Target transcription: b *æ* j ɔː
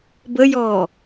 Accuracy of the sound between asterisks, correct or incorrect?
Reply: incorrect